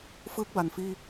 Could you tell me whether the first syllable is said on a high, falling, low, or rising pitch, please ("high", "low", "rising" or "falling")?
rising